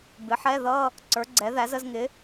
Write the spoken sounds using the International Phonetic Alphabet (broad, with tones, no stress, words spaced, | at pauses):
bɪ˩˥ħɛ˧˥˧ ðʌ˧˥˧ | ǀə˞˩˥ɡ͡ǀɛ˩˥ðæ˩˥z ə˧˥˧zŋɪ˩˥